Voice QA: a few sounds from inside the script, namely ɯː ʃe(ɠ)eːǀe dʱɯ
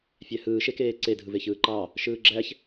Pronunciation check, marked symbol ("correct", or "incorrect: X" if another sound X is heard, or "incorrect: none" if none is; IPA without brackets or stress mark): incorrect: k